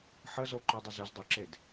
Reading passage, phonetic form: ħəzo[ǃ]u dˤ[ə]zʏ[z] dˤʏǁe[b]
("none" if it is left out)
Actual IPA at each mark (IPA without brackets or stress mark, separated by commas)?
ǃ, ə, z, d